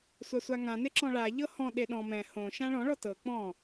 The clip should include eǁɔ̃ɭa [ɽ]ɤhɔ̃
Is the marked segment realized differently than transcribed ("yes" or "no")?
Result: yes